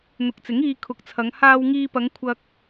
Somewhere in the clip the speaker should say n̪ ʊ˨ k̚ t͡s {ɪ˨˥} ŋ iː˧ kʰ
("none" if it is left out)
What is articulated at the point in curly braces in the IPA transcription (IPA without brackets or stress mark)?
ɪ˨˥